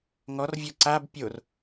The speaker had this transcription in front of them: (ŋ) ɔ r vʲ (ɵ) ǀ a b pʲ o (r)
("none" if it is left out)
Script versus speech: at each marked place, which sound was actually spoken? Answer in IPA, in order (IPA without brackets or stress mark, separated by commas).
ŋ, ɔ, r